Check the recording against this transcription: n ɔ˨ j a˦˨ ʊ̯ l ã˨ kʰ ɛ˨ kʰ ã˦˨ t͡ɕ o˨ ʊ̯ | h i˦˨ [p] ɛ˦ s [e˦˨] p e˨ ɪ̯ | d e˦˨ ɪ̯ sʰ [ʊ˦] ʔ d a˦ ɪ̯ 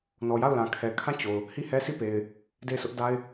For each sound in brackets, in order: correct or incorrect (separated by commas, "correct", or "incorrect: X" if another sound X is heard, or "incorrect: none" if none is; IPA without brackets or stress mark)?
incorrect: h, incorrect: i˦˨, correct